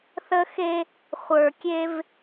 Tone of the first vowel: high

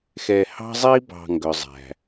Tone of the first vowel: low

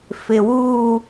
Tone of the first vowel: low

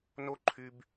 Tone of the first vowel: high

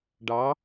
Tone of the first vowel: rising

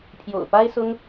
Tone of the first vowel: low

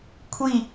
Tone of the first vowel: falling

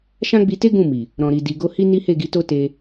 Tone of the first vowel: high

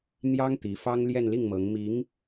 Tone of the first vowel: high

